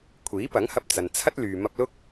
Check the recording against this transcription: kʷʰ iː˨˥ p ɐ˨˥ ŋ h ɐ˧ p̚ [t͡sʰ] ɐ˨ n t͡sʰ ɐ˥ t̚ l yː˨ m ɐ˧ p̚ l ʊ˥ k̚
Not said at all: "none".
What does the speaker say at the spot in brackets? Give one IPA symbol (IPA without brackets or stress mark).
t͡s